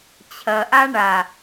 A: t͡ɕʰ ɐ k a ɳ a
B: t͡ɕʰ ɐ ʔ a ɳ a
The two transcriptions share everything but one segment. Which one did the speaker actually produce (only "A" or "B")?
B